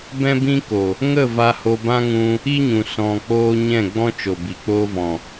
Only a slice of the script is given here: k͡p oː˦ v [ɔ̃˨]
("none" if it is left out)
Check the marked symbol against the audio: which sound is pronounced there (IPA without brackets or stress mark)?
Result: ɔ̃˨